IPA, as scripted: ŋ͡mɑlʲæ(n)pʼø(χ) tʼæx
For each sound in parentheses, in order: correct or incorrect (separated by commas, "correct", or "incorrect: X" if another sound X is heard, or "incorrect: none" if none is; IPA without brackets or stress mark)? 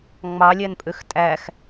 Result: correct, incorrect: x